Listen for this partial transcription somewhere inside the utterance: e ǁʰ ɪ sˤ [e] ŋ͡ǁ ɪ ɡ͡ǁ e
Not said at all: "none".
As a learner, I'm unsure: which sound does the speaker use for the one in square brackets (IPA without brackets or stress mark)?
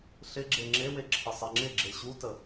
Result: ɛ